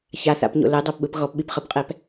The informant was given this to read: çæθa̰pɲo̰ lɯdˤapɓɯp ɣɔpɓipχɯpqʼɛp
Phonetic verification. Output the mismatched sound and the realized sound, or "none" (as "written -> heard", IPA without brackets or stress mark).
æ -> a